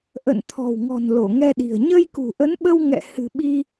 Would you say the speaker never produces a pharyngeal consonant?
yes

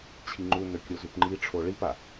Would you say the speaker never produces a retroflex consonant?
no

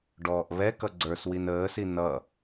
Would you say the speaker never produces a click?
no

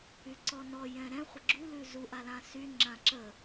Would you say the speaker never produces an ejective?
yes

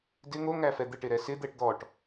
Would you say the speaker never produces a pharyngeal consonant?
yes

